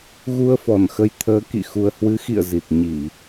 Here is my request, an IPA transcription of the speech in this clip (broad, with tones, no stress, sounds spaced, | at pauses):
ɣ u˧ ə̯ f ɔ˧˩ n x ə˨˦ j t̪ʰ əː˨˦ k ḭ˧˨ x u˨˩ ə̯ h w ɨ˨˦ x ḭ˧˨ ə̯ z i˨˩ t̚ ɲ i˧˩˨